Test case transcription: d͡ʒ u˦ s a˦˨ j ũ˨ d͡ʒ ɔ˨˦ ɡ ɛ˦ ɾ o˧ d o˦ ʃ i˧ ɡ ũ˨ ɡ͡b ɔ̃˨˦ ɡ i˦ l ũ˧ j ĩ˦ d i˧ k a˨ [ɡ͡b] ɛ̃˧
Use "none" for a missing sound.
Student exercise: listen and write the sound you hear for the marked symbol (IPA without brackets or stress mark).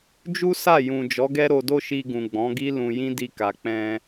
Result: k͡p